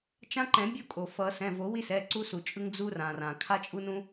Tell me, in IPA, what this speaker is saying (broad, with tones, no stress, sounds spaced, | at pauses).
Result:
t͡ʃ ã˦ ǃ ɛ̃˨˩˦ bʲ o˦ kʼ o˩ f ʌ˨˩˦ s ɛ̃˩˧˩ v o˨˩˦ w i˦ s ɛ˩˧˩ ǀ u˦ s u˩ t͡ʃʼ ɯ˦ ŋ d͡z u˦ r ã˩ r ã˩ kʰ a˦ t͡ʃʼ u˦ n ũ˦